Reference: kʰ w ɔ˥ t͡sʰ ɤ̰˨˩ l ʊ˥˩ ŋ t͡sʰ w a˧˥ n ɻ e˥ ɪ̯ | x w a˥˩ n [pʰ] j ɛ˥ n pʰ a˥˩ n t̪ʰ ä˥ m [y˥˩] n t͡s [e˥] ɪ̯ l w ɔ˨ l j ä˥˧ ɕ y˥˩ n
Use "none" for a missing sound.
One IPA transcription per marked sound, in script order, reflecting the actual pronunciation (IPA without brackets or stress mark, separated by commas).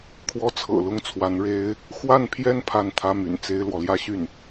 pʰ, y̰˨˩, e˥